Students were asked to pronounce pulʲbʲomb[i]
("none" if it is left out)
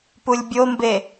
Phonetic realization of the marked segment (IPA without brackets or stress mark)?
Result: e